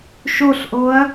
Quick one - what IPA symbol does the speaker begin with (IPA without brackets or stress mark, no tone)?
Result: ʃ